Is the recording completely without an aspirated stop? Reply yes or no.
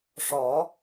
yes